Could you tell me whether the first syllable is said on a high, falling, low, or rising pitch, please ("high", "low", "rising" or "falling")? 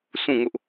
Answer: falling